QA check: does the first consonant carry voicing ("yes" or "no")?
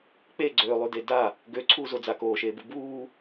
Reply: no